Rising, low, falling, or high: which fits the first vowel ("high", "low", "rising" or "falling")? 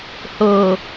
low